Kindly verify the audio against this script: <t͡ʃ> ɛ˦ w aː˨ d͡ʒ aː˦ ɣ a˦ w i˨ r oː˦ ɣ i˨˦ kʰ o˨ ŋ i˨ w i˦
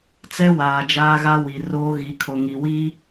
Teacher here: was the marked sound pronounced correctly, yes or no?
no